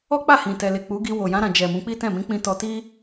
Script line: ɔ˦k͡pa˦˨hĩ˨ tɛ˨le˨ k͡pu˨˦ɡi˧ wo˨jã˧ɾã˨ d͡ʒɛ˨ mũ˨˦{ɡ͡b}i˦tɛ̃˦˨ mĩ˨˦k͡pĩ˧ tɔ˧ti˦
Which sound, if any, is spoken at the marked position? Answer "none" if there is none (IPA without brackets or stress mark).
k͡p